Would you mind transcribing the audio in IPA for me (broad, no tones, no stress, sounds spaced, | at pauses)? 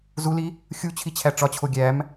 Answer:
z u l i | xʲ u t͡ɕʰ i t͡ɕʰ æ ʈ͡ʂ ɒ t͡ɕʰ o ɡʲ æ m